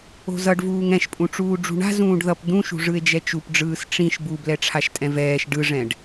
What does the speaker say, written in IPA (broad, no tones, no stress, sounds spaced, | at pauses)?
o̤ z ʌ ɖ v uː ŋ ɛ̃ ʃ pʼ ũ ʈ͡ʂ uː ɖ͡ʐ ṳ ɳ a̤ z ũː ɖ ð ʌ p d̪ ũ ʃ ṳ ʐ ɯ e̯ d͡ʒ ɛ t͡ʃ u p ɖ͡ʐ ɯː s ʈ͡ʂ ĩ ʃ b u b l ɛ ʈ͡ʂʰ a ʃ tʼ ɛ̃ v ɛː ʃ ɖ ɯ ʐ ɛ̃ ɖ